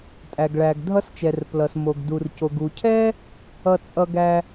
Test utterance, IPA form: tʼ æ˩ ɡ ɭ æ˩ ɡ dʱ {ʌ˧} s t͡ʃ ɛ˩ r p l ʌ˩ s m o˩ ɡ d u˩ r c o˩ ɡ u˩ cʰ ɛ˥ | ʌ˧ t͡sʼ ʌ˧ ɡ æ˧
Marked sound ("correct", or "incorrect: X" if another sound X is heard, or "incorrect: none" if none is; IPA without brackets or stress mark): correct